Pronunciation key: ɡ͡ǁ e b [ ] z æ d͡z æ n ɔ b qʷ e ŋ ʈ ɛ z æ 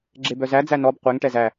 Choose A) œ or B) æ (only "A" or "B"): A